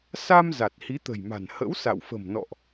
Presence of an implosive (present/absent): absent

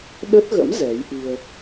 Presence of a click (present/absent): absent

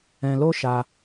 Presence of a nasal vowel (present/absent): present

